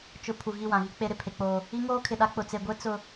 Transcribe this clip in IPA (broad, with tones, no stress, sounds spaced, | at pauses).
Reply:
t͡ʃ ʊ˨ pʰ u˨ ɣ i˦˨ w ã˨ ɣ i˦ k͡p e˦ ɾ ɪ˨ pʰ e˨ k͡p oː˨ | i˦ ŋ oː˦ kʰ ɪ˨ ɗ a˦ k͡p ʊ˨ t͡s e˨ ɡʷ e˦ t͡s ʊ˨